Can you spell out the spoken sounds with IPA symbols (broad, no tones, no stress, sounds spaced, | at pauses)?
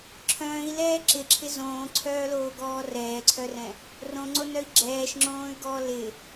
ǁʰ œ̃ː i̯ l ɛː ǁ ɪ ǁʰ ɪ z õː ǀʰ œː l oː ɡ ɔː r ɛː ǀʰ œ r ɛ̃ | r õ ŋ͡ǀ o n œ i̯ ɡ͡ǁ ɛː ʃ ŋ͡ǁ õː y̯ ɡ ɔː l ɪ